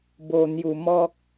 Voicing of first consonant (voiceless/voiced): voiced